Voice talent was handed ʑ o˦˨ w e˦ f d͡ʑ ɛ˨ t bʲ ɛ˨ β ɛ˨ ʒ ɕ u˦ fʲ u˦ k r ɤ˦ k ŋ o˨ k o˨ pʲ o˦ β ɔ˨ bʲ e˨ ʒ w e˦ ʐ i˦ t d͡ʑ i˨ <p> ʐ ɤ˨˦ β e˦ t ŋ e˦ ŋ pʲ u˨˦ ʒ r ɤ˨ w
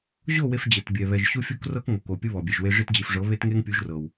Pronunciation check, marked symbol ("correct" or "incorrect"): incorrect